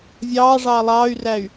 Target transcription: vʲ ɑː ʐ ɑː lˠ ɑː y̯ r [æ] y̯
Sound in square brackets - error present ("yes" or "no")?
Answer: no